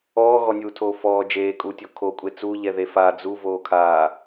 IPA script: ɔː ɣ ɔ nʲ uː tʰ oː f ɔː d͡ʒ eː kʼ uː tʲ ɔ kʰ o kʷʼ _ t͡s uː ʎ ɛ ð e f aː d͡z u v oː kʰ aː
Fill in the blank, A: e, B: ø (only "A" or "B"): A